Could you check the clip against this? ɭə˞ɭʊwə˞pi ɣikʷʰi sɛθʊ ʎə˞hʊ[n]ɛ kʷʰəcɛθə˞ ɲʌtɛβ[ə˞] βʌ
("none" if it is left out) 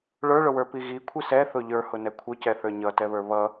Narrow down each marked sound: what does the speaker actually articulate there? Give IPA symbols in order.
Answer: n, ə˞

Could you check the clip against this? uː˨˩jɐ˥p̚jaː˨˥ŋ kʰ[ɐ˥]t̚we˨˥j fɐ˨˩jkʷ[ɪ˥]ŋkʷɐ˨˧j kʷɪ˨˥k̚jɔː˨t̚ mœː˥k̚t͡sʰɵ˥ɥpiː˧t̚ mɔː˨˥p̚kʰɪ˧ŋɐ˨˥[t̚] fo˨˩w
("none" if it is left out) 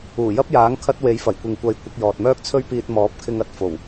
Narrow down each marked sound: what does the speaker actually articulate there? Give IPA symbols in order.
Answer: ɐ˥, ɪ˨, t̚

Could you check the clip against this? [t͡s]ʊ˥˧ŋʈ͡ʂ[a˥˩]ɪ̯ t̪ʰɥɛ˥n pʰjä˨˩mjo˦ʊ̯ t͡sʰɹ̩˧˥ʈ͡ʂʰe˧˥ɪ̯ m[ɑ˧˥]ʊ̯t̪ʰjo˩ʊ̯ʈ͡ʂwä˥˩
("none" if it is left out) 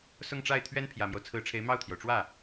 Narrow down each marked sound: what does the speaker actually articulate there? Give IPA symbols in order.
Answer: s, a˥˩, ɑ˥˩

